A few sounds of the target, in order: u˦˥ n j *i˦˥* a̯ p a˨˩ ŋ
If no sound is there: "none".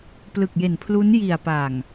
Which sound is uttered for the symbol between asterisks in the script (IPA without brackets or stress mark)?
i˨˩